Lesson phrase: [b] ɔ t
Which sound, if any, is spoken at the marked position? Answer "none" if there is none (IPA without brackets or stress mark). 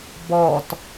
b